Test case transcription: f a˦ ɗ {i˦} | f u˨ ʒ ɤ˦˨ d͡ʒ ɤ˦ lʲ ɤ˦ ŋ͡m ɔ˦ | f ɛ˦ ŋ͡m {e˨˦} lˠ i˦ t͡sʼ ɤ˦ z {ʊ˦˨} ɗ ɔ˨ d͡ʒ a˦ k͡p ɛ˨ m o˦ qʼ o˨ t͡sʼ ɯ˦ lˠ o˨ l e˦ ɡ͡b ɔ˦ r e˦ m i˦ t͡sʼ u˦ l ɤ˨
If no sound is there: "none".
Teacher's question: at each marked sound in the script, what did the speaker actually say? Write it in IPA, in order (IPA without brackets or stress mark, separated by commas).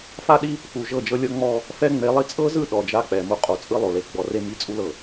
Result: i˦, e˨˦, ɯ˦˨